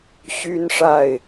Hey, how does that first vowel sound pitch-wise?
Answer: high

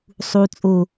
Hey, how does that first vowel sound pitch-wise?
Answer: low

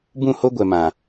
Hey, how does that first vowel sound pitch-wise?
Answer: falling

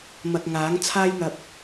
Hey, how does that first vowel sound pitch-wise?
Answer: low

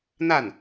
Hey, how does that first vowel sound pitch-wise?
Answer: falling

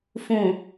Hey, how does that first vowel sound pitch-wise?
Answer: low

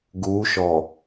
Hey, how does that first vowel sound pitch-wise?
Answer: rising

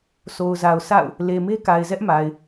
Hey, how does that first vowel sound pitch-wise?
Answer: low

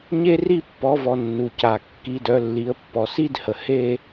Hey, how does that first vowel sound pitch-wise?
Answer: falling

